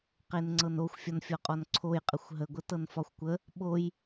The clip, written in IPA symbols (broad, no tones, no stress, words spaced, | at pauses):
qenŋ͡ǀɤnoxʷ fʲɒnfʲɔqʼɔnǀʰoj qʼəxʷɦə ɡʷətɤnfɒxʷkʷə | ɓoj